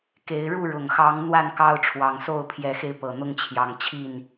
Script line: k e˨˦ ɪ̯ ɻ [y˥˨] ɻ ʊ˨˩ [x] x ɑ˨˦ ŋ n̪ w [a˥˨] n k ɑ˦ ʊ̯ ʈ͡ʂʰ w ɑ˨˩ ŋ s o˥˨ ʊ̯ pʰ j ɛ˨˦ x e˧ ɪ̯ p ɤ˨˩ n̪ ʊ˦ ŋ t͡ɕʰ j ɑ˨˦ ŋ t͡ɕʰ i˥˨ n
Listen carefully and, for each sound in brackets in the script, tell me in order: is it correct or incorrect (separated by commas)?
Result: incorrect, incorrect, correct